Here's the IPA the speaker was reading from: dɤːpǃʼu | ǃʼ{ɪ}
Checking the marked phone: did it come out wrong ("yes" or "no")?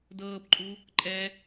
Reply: yes